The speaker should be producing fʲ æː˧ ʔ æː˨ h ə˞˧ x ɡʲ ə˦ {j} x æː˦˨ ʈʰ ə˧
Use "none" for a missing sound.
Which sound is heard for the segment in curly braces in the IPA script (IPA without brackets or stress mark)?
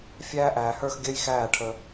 j